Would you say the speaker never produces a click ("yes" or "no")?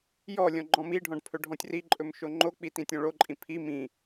no